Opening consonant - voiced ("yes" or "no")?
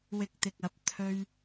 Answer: yes